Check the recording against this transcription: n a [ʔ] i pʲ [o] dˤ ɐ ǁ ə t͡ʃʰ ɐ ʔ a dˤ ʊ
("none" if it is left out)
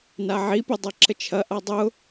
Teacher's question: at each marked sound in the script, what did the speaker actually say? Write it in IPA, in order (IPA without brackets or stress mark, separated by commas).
ʕ, o